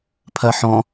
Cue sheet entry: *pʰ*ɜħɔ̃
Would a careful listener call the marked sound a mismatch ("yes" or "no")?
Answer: no